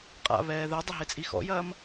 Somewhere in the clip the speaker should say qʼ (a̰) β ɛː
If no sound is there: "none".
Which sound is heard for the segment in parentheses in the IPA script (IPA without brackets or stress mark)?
a̰